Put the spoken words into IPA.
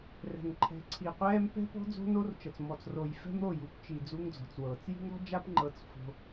r ɛ̤˨ ŋ ǃʰ ɛ̤˨ ǀʰ i˨ qʷ ɛː˦ m p ɛ̤˦ p ɔ̤˦ d͡z o̤˦ n o˦ r t͡ʃ ɤ˨ t͡s m ɔ˨ t͡s r o˨ j f ɛ̤˦ m ɾ o˦˨ j u˨ p t͡ʃ i˨ d͡z u˦ ŋ d͡z ɔ̤˨ t͡s w ɤː˨ t͡s j i̤˦ ŋ ɾ ɔ̤˦ d͡ʒ a˦ p ŋ͡ǃ ɤ˦ t͡s f o̤˦

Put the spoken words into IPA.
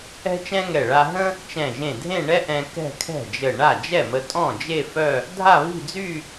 ɛ̤˥ t͡ʃ ɛ̃˥ ŋ ɛ˧˩ ɭ a˧ ɦ ə̃˥ | t͡ʃ ɛ̃˧˩ ʒ ẽ˧˩ dʱ ẽ˥˧ ɳ ɛ˥ ʔ ɛ̃˧ k ɛ̤˥˧ kʰ ɛ̤˥˩ d͡ʒ ə˧˩ ɳ a˥˩ d͡ʒ ɛ˥˩ m ə˧ tʼ ɔ̃˥˩ d͡ʒ e˥˧ f œ˥˧ | dʱ a˥˧ β i̤˥˧ d͡z y˥˧

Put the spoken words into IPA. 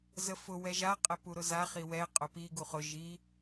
z ə f ʊ w ɛ ʒ a qʼ ɛ p u ɾ ʊ z a χ i w ɛ qʼ ʊ p i ɡ u χ ʊ ʒ i

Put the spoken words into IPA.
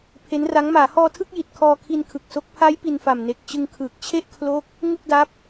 pʰ e˦˥ n r a˦˥ ŋ m aː˩˦ h ɔː˧ tʰ ɯ˥˩ k̚ j i˨˩ t̚ kʰ ɔː˧ kʰ i˧ n kʰ ɯ˨˩ k̚ s o˦˥ k̚ pʰ a˦˥ j p i˧ n f a˨˩ m n e˨˩ k̚ t͡ɕ ɯ˧ ŋ kʰ ɯː˨˩ k̚ t͡ɕʰ e˥˩ ʔ kʰ l o˦˥ k̚ | ŋ u˥˩ k̚ d a˦˥ p̚

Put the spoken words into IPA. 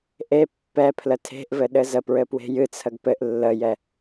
ʔ e pː ɛ pʰ l ə tʰ e̤ ʔ v ɘ ɗ ɘ z ə p ɹ ɘ p w e̤ j ɨ t͡sʰ ə ɡ p ɘ ʔ lː ə j ɛ

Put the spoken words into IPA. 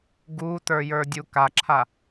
ɡ u t ə˞ j ə˞ dʲ u k a ǁʰ a

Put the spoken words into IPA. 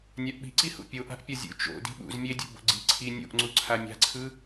nʲ a ʔ ɓ i̤ ǀ i h ṵ pʲ o ʔ a̤ ʔ pʲ ʌ zʲ ṵ t͡ʃ o̰ d i̤ ɓ ṵ z mʲ e dʲ o̰ b o̰ ɡ͡ǀ i ǀʰ i nʲ o̰ ʔ ŋ͡ǀ u ǀʰ a mʲ a̤ ǀʰ ɯ

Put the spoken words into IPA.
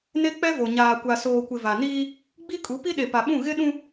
n e˦ k͡p ɛ˦ v o˨ ɲ aː˨ kʷ a˨ s oː˨ kʷ ɪ˨ v a˨ n iː˦ | ɡ͡b i˦ kʼ u˨˦ p i˦ ɗ e˨ p a˨ ɓ ũ˦˨ ɣ ɪ˦ ɗ ũ˦

